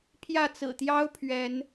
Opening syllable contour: falling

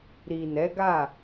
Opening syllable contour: low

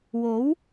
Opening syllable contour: rising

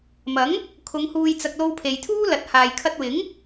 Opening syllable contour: rising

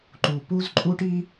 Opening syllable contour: low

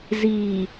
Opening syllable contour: low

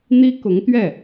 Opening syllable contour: high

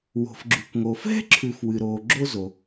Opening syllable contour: low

